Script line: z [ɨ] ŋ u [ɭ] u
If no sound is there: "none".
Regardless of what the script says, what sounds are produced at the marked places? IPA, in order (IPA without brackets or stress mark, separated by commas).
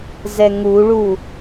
ɛ, ɭ